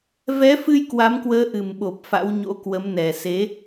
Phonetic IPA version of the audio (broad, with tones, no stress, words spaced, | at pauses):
vɛ˨˦fɨ˧j kwa˨˦mkwəː˨˦ʔɨ˨˩mɓo˨˩p̚ fa̰˧˥wɲo̰˧˥kwə˨˦mnɛ˨˩ se˨˦